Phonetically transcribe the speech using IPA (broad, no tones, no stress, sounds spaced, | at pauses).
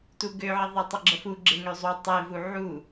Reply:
t u ɡ ø ʕ ə ðˤ e tˤ ə ɡ͡ǁ ə f u ɡ͡ǁ e ŋ ø zˤ u tˤ e v u ʕ u